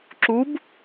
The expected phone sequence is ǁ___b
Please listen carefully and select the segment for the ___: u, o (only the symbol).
u